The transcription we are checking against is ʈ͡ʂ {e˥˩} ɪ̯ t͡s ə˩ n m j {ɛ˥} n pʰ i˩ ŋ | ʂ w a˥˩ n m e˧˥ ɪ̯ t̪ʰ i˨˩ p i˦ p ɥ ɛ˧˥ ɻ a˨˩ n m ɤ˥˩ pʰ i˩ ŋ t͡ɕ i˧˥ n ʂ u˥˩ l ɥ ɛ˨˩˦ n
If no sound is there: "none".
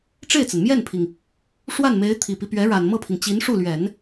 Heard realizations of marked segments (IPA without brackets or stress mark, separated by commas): e˥˩, ɛ˥˩